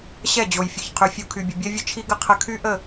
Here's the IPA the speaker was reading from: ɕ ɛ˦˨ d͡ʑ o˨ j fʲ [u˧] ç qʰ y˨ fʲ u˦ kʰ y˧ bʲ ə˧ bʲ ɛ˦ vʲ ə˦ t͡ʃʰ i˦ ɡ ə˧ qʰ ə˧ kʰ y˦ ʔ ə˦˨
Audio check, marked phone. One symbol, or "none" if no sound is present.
u˨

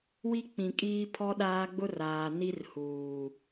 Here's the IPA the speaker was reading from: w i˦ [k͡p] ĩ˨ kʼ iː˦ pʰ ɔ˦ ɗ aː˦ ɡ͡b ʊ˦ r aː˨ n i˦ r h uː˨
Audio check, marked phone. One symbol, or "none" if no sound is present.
k͡p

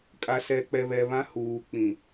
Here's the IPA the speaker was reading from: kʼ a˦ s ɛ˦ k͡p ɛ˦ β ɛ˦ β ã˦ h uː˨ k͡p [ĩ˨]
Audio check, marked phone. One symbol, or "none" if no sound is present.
ĩ˨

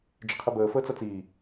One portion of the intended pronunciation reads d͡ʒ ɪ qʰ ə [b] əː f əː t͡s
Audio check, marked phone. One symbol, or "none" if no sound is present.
b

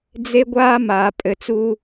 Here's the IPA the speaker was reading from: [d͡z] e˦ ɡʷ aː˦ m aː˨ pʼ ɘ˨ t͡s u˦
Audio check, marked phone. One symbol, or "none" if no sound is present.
d͡z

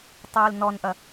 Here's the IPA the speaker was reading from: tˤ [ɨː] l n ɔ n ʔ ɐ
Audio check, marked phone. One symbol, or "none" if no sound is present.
ɨː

